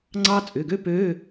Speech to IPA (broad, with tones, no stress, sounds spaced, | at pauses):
ŋ͡ǀ ɑ˥ t͡sʼ ʏ˩˧˩ ɡ ø˥ p øː˧˥˧